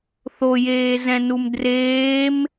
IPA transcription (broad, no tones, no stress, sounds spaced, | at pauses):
θ o j eː z ɛ̃ n u m d r eː m